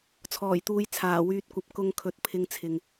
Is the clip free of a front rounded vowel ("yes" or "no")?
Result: no